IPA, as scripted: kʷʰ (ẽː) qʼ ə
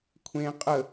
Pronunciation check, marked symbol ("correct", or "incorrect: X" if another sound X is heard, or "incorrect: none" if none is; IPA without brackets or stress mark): correct